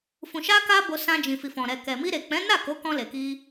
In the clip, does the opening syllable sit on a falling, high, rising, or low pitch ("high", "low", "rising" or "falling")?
low